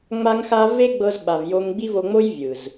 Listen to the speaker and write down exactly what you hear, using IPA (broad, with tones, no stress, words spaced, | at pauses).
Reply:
ŋ͡ma˦ŋxa˦ ve˦ɡ͡bɤ˧zɓa˨v jo˧ŋɡ͡bi˦vo˧ŋ͡mo˦j vʲɯ˨z